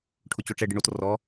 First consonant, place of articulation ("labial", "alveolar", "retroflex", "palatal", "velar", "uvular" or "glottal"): retroflex